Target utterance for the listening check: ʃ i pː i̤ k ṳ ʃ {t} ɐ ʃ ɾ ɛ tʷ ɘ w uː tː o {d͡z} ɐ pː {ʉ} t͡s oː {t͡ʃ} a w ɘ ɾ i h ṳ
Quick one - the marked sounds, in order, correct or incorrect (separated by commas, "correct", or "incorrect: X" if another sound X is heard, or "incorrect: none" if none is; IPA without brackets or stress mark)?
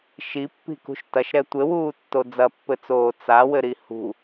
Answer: correct, correct, incorrect: ɘ, incorrect: t͡s